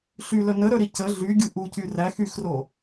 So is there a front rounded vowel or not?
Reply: yes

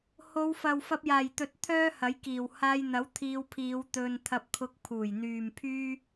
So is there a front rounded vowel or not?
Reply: yes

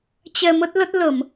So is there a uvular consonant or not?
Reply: no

